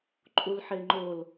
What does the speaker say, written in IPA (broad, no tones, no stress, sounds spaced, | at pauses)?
ǃʼ u l ħ e ŋ͡ǃ o l